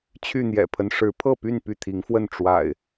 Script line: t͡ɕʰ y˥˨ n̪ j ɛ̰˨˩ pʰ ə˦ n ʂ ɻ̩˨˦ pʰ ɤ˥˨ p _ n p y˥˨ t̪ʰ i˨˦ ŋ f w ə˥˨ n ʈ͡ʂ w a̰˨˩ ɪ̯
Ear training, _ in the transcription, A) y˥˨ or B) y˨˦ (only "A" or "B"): A